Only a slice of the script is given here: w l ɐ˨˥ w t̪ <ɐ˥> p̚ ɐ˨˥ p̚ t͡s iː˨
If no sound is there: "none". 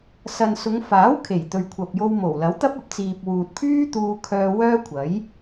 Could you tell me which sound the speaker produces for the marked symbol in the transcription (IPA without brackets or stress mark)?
ɐ˥